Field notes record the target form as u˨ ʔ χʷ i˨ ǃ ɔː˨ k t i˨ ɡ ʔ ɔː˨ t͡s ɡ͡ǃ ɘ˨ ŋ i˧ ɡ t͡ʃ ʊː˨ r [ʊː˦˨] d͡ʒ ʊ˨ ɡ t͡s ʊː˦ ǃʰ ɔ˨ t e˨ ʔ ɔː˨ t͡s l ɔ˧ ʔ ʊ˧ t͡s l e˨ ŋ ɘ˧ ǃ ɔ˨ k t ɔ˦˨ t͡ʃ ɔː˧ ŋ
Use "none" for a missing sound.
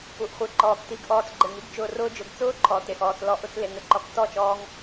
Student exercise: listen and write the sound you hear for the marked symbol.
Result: ʊː˧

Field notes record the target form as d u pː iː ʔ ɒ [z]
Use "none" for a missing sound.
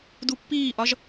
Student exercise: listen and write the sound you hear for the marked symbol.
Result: ʒ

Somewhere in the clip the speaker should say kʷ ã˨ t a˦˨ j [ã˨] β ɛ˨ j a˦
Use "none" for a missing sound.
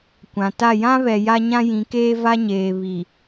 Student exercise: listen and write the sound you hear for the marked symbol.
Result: ã˦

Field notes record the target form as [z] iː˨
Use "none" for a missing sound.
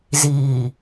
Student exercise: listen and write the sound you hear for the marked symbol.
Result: z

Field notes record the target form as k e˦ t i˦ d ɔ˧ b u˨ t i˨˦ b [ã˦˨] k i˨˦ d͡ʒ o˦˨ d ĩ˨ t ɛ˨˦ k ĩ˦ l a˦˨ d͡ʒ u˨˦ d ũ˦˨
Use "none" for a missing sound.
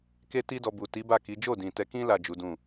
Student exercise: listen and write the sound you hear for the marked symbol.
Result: a˦˨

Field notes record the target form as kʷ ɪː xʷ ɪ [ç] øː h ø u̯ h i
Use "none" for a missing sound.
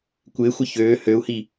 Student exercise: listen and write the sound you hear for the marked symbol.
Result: ç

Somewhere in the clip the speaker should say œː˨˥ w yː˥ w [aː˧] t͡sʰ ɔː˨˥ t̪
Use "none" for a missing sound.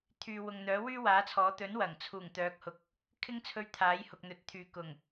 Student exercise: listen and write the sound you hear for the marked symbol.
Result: aː˨˥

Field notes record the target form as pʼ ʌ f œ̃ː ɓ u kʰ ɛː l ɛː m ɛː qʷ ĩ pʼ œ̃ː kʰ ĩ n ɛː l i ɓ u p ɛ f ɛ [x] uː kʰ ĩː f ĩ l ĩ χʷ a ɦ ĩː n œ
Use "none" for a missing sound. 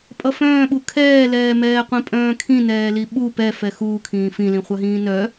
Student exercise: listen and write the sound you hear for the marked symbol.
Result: x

